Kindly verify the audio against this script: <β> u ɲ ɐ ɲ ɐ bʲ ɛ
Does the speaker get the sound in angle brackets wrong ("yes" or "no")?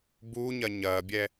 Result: yes